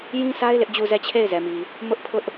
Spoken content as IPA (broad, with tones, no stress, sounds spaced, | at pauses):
j ĩ˦ s a˦ ɪ̯ l ɪ˦ ʔ d͡ʑ u˦˨ z ɛ˦˨ t͡ɕʰ e˦˨ ɪ̯ z ɛ˨ m i˨ | m ʊ˦ ʔ pʰ ʊ˦ ʔ